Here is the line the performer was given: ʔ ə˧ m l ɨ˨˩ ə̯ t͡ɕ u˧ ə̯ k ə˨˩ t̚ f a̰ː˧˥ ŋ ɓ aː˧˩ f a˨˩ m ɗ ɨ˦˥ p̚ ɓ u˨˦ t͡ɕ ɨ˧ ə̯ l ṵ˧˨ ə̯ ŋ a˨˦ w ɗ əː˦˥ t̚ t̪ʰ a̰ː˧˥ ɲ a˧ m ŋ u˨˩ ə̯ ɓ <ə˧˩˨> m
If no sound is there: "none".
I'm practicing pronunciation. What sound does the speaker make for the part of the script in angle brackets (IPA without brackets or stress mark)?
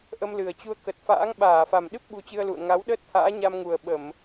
ə˧˩˨